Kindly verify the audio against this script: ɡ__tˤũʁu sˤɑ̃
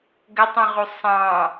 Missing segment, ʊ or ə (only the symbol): ə